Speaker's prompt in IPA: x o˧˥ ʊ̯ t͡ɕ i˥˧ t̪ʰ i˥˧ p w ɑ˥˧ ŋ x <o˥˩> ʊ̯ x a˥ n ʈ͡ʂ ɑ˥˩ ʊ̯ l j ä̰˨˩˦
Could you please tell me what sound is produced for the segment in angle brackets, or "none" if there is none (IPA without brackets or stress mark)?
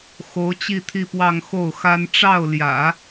o˥˩